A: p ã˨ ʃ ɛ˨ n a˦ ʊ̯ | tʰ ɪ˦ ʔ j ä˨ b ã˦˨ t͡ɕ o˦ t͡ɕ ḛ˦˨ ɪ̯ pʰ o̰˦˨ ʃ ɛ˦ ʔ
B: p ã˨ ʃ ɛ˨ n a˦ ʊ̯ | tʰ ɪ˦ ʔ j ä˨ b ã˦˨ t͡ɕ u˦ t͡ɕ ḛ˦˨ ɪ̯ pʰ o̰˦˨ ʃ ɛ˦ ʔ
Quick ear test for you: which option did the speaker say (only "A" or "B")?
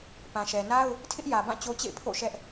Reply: A